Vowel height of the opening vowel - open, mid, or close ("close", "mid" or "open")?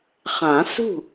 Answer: open